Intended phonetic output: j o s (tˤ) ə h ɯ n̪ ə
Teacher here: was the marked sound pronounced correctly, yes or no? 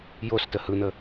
no